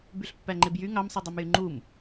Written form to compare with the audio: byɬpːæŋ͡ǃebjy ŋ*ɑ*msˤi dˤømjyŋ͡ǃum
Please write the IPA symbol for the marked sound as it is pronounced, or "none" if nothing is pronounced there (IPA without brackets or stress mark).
ɑ